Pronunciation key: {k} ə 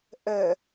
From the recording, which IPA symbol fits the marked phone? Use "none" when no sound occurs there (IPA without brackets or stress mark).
ʔ